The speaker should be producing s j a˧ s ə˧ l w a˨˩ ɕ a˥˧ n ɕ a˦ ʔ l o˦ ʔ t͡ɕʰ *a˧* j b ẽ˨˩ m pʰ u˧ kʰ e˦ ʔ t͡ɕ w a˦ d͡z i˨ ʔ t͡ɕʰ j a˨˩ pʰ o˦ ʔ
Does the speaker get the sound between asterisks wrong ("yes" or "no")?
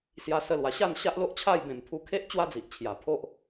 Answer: yes